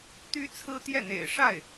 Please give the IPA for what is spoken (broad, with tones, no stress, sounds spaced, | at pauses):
t̪ y˥ t͡sʰ ɹ̩˥ t̪ j ɛ˥˩ n̪ ḛ˨˩ ɪ̯ ʂ a˥˩ ɪ̯